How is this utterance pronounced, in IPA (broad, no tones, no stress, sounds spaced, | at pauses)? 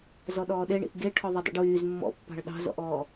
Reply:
z ɔ ɗ ɔː ɗ e ɳ ḭ ʔ ɡ e ʈʰ ɔ ðˤ ø dˤ ḭ ɖ w yː z mː ɔ̰ pː ɑ̤ ɭ ɗ ɑ̤ z ɔ̰ ʔ ɔː